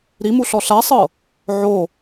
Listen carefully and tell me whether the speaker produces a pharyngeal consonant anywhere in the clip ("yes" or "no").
yes